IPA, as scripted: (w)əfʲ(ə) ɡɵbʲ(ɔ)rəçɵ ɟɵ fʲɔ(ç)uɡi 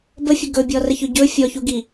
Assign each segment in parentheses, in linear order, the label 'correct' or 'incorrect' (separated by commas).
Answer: incorrect, incorrect, correct, correct